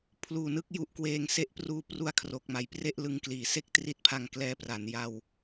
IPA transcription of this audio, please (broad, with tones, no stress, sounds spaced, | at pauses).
pʰ l uː˨˩ n ɯ˦˥ k̚ j u˦˥ ʔ k w eː˧ ŋ s e˥˩ ʔ p r uː˧ p r u˦˥ a̯ kʰ r o˨˩ k̚ m a˩˦ j p r e˥˩ ʔ l ɯ˧ ŋ k l iː˨˩ s e˥˩ k̚ t r i˦˥ t̚ pʰ a˧ ŋ k l ɛː˧ p r a˩˦ n j a˧ w